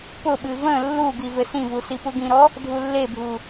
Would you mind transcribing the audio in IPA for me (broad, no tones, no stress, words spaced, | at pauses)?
pʊɓɨ və̃ lːuɡi vɘsĩvu sipuɡĩɾɔ | dʱulːebʱu